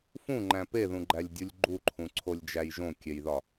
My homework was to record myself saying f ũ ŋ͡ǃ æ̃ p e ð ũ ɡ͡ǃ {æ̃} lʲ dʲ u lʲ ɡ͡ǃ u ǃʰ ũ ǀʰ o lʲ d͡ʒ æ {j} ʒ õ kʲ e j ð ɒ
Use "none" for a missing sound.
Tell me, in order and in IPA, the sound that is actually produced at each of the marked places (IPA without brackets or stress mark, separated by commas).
æ, j